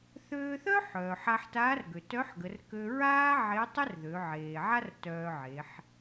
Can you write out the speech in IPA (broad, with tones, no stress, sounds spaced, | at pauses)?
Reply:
θ øː˧ θ œ˥ ħ œː˩ ħ a˧ ħ t aː˧˥ r ɡ ø˩ t œ˧˥ ħ ɡ ə˩˧ r k ø˧ ɹ aː˥ ʕ e˧˥ tˤ ə˥ r ð ø˩˧ ʕ eː˩ ʕ a˥ r t œː˧ ʕ e˩˧ ħ